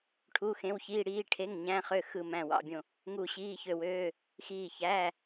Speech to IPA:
ʈʰu˧˥˧xẽ˧˥˧wçiː˧˥˧ ɽiː˧˥˧ ʈʰe˧˥˧ŋɲæ̃˧˥˧χø˦˨ xɯ˦˨mæ̃˦˨wɑ̰˧˥˧bʲõ˦˨ | ŋu˦˨ɕiː˧˥˧çø˦˨wøː˧˥˧ | xiː˦˨çæː˧˥˧

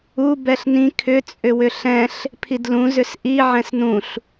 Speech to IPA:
u bɛɬnĩ kʰʏ t͡sʼʏwʏɬɛ̃ɬ | pʰidlũ zʏsʔi ʕɛ̃snũɬ

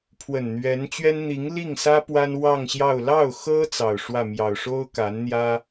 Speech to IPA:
pʰwə˨˩nn̪ɥɛ˧˥nt͡ɕɥɛ˥n n̪i˧˥ŋ li˥˩ŋsä˥ pwa˥nwɑ˥˧ŋɕjɑ˥˧ʊ̯ lɑ˥˩ʊ̯xɤ˥ t͡sɑ˨˩ʊ̯ʂwä˥˩mjɑ˨˩ʊ̯ ʂo˥ʊ̯ka˧˥nn̪jä˥

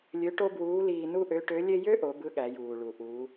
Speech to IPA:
lʲø˧˥ʈo˥bwuː˧˥liː˧ nu˥ʔø˧˥ʈø˧˥lʲe˥ jø˥ʔo˩˧ bɯ˧˥ɠæ˩˧juː˩ ɭu˩ ʔuː˩˧

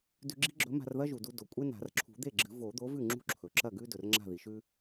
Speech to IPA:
dʉ˧ɡ͡ǁi̤˥ɡ͡ǁɵ˨˥ ma̤˧rðɐ˥ʒu˩du˧ do˩kʷʼe˥na̤˨˩˦r ǁʰṳ˨˩˦ d̪e˥˩ɡ͡ǁɨ˨˩˦ vo˨˩˦d̪o˨˥vʉ˥˩ ŋ͡ǁṳ˥ǁʰɵ˩ ǁɐ˥˩ɡʉ˥ dɵ˩rŋ͡ǁa̤˥˩ði˩ʃʉ˥

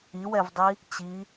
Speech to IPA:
iwɛvdˤi | t͡ɕi

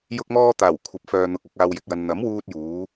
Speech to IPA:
jʊ˧k̚mɔː˧t̪aː˨˩w kʷʰɐ˨˥p̚fœː˨n̪ʊ˨k̚ ɐ˨˥k̚aː˧wjɪ˨k̚jɐ˧n n̪ɐ˨˥mwuː˧t̚juː˨˧

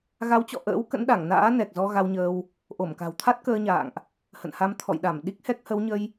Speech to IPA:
ɣa˨˦wt͡ɕɔ̰˧˨ʔə̰ː˧˥w kə̰˧˥nɗa˧˩ŋna̰ː˧˥ nɛ˨˩k̚zɔ˧ ɣa˧wɲəː˧w | ʔo˧˩mka̤˨˩wt̪ʰa˦˥t̚ kəː˧ɲa̰ː˧˨ŋʔ | hə̰˧˨nha˧m t̪ʰɔ̰˧˨jɗa˧˩mɗi˦˥k̚hɛ˦˥k̚ hə˨˦wɲə˧j

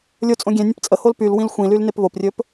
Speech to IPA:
lʲo t͡sʼõɡʲɛ̃nʲə̃p t͡sʼəhol pyl wĩlxʷĩlyl nepβoprʲɵp

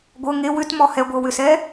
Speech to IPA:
ɡʷɤ ŋe wʏtmɔ hɛɡʷɤ wʏsɛ

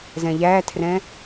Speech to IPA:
zɛ̃ʎætʰrɛ̃

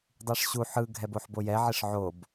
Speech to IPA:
dˤiʂɕu ħɯ ɡʱɛboħbojɛ ʕiʂʕob

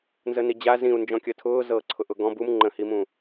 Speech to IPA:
nzənid͡ʑa zĩu̯ nd͡ʒɔ̃kʲətʰʊː zɤːǀʰʊʔʊɡɔ̃ bum ŋ͡ǃə̃himũ

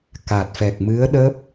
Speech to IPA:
ka˨˩t̚fɛ˨˩k̚mɨ˧˥ə̯ɗəː˦˥p̚

